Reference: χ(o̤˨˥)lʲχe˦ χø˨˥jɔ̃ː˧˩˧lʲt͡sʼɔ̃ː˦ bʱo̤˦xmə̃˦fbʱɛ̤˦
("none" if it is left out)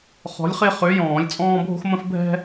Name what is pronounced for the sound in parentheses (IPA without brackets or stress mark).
ɔ̤˨˥